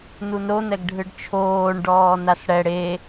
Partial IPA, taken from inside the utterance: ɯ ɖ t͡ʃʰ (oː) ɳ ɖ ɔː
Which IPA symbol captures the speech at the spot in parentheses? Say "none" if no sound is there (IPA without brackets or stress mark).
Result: oː